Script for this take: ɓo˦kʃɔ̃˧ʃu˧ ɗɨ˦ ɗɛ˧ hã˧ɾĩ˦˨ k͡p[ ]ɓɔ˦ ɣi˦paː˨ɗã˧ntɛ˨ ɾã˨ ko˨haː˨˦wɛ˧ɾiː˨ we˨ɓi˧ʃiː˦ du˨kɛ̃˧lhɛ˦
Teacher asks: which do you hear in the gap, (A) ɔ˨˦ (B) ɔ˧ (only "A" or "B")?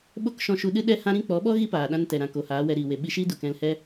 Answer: A